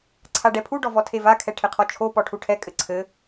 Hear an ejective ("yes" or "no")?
yes